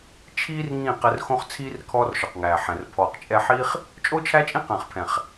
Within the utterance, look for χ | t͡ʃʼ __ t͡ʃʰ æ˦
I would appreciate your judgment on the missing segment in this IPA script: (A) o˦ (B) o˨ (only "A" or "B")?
A